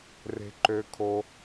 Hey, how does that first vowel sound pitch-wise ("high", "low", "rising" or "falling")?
low